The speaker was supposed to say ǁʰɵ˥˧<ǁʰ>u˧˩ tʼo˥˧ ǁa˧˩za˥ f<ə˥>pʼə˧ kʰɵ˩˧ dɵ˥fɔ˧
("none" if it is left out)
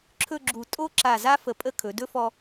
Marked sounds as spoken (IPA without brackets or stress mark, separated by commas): ɡ͡ǁ, ə˩˧